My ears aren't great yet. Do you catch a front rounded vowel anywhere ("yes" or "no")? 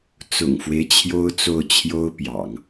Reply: no